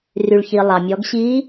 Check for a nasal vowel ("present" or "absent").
absent